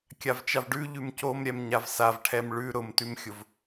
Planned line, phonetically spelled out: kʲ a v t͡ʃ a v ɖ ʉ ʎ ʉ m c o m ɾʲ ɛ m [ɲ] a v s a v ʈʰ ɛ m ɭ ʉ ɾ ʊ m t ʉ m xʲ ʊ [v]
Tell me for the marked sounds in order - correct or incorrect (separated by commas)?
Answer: correct, correct